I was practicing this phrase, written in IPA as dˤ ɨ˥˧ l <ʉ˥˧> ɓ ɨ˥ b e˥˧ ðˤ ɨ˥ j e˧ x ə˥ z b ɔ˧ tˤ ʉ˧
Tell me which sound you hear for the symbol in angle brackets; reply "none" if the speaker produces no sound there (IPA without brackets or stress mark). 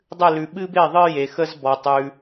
ʉ˧